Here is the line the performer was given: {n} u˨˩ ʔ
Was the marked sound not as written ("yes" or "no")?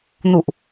no